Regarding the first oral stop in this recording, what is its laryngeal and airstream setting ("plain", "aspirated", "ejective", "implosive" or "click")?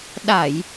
implosive